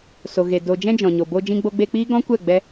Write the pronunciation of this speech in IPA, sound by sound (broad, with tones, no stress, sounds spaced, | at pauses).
s o˨ ɣ e˨ d o˨ d͡ʒ ɛ̃˧ d͡ʒ ɔ̃˨ ɲ o˨ b o˧ d͡ʒ ĩ˧ ɡ͡b o˧ ɡ͡b e˧ k͡p iː˦ ɡ ɔ̃˦ kʷ ɛ˦˨ ɡ͡b ɛ˧